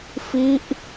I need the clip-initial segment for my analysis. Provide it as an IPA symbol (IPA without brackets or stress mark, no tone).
f